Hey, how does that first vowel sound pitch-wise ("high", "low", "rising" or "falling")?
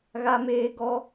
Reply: high